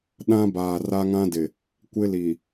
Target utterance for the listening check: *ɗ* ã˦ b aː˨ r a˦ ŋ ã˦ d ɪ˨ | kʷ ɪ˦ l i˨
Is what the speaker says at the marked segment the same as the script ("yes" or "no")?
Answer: yes